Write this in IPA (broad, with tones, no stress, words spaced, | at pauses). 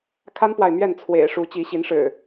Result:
kʰa˦npwa˨ɪ̯ mɥɛ˥˨n t͡sʰwḛ˨˩ɪ̯ʂu˨˦ t͡ɕi˨˦ɕi˨˦nʂɻ̩˨˩